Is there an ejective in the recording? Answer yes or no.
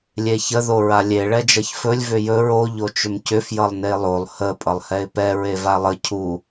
yes